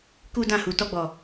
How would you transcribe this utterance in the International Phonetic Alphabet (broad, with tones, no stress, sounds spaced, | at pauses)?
k u˦ d ã˦˨ h u˨ t ɔ˧ ɡ͡b ɔ˨